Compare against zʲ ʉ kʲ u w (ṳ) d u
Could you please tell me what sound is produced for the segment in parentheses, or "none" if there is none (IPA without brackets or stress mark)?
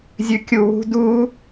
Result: ṳ